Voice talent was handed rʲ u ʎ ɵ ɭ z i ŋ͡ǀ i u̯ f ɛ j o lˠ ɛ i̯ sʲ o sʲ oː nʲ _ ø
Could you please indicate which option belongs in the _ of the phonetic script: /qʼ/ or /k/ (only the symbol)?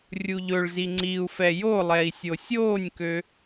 k